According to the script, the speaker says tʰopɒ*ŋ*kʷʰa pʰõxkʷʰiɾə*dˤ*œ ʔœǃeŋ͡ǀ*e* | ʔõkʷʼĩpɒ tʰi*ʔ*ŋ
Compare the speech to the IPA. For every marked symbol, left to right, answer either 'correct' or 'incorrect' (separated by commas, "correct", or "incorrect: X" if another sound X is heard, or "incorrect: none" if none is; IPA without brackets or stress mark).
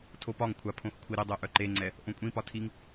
correct, correct, incorrect: ɛ, incorrect: none